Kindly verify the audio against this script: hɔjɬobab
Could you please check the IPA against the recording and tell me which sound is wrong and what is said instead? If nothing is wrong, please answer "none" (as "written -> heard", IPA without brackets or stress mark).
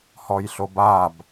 none